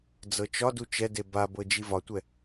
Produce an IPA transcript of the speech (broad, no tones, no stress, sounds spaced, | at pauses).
d͡z ɤ t͡ʃ ɒ d u t͡ʃ ɛ d e b a b ɤ d͡ʒ i v ɒ tʷ ɛ